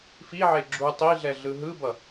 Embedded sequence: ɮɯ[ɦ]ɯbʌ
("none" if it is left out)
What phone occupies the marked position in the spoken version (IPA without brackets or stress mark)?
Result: ɦ